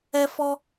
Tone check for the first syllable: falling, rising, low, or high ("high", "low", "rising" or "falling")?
high